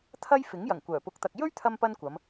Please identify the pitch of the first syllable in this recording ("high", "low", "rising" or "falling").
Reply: high